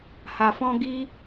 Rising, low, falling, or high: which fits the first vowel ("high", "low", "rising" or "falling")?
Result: low